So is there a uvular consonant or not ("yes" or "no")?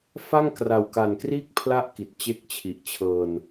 no